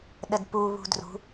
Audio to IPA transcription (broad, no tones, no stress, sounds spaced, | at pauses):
ɗ ə d p u β ṳ d r ṳ